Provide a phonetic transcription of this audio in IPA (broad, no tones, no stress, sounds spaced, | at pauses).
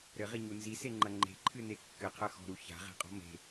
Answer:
ɾ ɘ ʁ i ɲ u n z i s e ŋ͡ǃ ɐ ŋ͡ǃ e̤ ǃʰ ɨ n e kː ɘ qʰ ɐ x ɔ̤ ɾ u ç a̤ ʁ e̤ qʼ ɔ̤ m e̤